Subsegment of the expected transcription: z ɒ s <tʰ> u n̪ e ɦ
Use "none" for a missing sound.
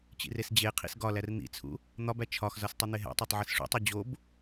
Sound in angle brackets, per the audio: tˤ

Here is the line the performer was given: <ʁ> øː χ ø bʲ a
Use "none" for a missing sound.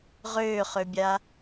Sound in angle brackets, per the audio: ʁ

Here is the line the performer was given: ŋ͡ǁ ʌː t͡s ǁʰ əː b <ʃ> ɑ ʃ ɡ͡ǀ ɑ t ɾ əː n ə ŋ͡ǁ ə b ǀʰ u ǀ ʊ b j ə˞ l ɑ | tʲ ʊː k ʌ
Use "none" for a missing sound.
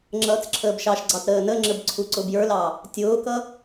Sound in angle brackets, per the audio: ʃ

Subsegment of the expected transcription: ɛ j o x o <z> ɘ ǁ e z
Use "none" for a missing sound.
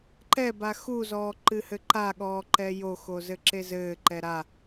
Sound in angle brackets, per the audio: z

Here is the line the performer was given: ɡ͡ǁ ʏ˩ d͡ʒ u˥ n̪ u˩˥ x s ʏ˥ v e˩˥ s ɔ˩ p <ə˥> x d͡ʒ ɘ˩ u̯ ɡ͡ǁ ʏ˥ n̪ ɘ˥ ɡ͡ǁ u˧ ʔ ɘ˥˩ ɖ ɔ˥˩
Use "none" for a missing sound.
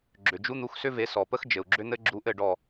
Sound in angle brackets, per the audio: ə˥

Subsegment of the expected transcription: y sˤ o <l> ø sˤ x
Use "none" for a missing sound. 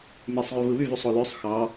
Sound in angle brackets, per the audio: l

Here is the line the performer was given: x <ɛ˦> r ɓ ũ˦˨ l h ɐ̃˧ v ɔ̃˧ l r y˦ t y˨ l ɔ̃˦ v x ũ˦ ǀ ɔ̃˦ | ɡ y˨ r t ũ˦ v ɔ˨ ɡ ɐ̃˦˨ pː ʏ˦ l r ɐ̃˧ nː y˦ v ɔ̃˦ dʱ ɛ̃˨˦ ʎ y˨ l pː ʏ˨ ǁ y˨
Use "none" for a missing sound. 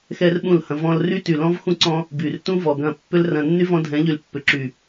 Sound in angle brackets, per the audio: ɛ˦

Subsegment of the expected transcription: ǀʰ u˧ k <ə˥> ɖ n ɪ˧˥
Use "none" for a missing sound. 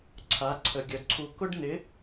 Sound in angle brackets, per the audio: ʊ˥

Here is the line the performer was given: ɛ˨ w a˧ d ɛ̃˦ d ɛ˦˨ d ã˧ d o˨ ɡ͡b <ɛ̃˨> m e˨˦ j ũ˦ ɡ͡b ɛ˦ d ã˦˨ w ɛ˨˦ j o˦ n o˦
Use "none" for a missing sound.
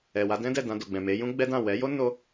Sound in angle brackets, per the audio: ɛ̃˨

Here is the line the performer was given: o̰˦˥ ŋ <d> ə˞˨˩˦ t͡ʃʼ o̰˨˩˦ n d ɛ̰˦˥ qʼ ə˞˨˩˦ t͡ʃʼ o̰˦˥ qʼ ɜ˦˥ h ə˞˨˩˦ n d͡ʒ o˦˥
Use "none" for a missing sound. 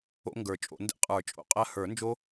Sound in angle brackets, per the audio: ɡ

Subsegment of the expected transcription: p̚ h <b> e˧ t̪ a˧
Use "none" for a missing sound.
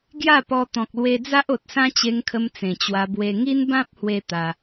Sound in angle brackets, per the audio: w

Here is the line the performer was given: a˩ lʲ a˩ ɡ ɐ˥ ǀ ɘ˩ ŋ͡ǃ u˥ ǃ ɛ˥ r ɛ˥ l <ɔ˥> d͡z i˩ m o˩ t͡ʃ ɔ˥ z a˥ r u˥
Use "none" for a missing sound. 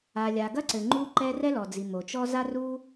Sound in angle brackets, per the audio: ɔ˩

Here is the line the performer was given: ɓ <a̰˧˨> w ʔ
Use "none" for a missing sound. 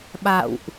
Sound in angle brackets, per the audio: a̰˧˨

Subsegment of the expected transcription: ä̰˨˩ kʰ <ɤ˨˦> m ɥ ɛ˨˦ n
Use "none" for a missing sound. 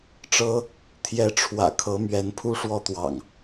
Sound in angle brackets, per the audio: ɤ˨˦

